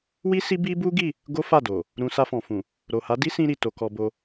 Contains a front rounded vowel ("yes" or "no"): no